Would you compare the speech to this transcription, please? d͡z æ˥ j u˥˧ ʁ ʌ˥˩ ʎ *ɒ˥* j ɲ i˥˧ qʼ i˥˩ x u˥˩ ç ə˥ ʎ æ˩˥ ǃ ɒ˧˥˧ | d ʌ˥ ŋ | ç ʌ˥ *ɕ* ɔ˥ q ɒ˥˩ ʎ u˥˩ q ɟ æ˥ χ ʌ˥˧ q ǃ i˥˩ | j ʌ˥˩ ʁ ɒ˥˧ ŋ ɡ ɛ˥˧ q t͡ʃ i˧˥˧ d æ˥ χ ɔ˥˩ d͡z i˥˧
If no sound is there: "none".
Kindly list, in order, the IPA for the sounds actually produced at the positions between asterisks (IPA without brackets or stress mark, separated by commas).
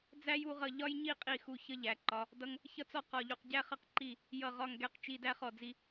ɒ˥, t͡s